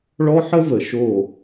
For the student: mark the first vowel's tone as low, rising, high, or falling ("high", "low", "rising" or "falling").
high